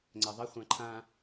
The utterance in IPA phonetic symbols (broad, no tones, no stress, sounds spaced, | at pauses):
ŋ͡ǀ ɛ ðˤ ə χʷ ã ǃʰ ã